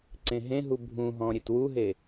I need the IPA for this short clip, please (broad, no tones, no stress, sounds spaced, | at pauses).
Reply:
ǀ ẽ ɦ ẽ ɦ u bʱ ũ ɦ ɔ̃ ɾʲ e t w u ɦ e